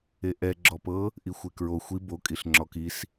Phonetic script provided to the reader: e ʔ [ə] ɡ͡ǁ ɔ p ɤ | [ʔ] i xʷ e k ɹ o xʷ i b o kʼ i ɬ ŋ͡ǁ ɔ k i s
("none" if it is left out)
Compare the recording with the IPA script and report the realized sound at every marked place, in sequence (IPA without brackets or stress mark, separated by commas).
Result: ɛ, ʔ